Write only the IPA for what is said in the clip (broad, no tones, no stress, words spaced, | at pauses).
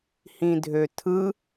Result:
hĩdʱøtʰɯ